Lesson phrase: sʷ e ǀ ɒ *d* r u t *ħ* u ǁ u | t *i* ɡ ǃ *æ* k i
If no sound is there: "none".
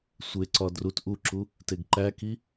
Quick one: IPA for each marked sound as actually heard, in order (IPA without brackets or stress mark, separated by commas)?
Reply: d, ʔ, e, æ